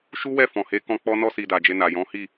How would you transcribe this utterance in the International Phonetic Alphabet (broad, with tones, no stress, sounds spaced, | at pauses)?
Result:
ʃ u˦ w ɛ˦˨ f ɔ̃˨ h e˨˦ k ɔ̃˧ k͡p ɔ˧ n ɔ˧ s i˨ d a˨ d͡ʒ e˧ n a˨ j ɔ̃˨˦ h i˦˨